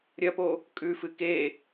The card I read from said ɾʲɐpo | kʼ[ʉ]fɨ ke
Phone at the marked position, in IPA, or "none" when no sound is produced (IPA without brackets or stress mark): ʉ